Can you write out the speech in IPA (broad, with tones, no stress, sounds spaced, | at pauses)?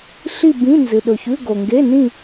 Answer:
ɬ i˥˧ b ĩ˧˥˧ n z ɨ˨ ɗ ɵ˨ ç ʉ˧˥˧ ɡ o˨ ŋ ɡ e˧˥˧ n ĩ˥˧